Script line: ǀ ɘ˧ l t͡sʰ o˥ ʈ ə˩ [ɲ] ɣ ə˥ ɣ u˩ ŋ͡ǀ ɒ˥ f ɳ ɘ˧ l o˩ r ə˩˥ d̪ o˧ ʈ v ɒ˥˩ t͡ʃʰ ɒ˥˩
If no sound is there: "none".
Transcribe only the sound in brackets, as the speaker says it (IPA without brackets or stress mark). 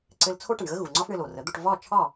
ɳ